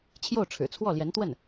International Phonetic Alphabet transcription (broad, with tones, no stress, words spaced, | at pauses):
t͡ɕʰjo˥˩ʊ̯ʈ͡ʂʰɻ̩˨˩t͡sʰwɔ˥˩ljɛ˧˥n t̪wə˥˩n